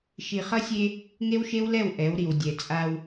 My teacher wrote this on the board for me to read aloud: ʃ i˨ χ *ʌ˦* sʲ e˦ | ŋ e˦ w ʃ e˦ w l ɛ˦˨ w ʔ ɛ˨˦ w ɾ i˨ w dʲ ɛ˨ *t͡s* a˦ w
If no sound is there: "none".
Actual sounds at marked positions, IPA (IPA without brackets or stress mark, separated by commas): ʌ˦, t͡sʼ